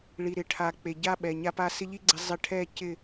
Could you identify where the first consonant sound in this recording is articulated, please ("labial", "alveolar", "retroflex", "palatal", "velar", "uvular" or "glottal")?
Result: retroflex